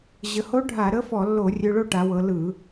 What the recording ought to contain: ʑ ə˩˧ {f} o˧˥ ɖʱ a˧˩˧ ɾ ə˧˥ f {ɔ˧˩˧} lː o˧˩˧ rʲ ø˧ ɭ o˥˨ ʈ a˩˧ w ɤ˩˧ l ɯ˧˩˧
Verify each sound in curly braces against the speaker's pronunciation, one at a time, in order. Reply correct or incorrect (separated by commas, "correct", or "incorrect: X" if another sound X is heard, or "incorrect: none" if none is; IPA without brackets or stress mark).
incorrect: h, correct